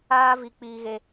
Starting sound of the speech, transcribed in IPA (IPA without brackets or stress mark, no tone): aː